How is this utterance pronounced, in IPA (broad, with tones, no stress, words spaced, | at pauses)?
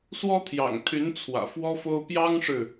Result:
swɔ˥t̪ʰjɑ̰˨˩ŋt̪ʰy˧˥n t͡sʰwä̰˨˩fwɔ˥fo˥ʊ̯ pjɑ˥ŋʂɻ̩˨